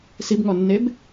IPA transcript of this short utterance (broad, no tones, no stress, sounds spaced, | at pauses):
s i b ŋ ɔ nː e b